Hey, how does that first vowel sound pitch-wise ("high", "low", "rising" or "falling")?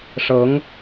rising